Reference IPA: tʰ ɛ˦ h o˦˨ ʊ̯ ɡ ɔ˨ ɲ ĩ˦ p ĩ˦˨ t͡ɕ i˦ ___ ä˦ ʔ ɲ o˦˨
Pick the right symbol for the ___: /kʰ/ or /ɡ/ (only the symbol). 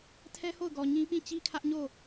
kʰ